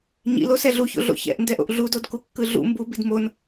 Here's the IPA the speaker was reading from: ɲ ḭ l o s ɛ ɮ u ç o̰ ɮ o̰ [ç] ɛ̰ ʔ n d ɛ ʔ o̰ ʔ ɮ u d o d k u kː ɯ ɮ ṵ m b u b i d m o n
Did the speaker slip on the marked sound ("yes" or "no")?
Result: no